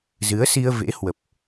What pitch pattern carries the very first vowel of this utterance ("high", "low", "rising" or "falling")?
rising